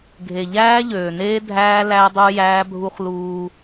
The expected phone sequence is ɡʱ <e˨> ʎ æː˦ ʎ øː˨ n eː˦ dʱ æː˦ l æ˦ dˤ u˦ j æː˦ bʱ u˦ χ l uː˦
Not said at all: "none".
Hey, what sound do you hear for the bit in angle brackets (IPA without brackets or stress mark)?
e˨